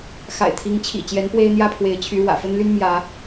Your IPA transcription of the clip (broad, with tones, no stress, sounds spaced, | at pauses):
x a̰˨˩ ɪ̯ t̪ʰ i˨˦ ŋ t͡ɕʰ ḭ˨˩ t͡ɕ j ɛ˨˦ n p w e˦ ɪ̯ n̪ j ä˥˨ pʰ w e˨˦ ɪ̯ t͡ɕʰ y˨˦ ɻ w ä̰˨˩ f ə˦ n l y˦ n m j ä˨˦